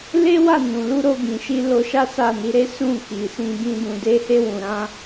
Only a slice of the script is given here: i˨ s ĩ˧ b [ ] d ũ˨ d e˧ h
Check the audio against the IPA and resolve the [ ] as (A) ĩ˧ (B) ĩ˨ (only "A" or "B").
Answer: A